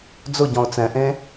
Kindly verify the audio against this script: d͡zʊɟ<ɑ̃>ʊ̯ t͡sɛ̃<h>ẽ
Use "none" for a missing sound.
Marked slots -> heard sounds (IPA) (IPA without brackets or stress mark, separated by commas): ɔ̃, ʔ